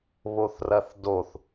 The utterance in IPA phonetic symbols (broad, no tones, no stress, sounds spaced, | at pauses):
β o θ r ɐ θ d o θ